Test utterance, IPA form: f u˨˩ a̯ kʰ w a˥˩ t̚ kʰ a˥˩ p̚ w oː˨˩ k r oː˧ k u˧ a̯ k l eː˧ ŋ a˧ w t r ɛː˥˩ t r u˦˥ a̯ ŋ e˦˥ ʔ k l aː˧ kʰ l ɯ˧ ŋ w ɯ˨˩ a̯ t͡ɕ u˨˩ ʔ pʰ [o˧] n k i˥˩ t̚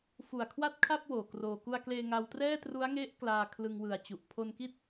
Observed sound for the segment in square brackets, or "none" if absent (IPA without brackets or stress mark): o˧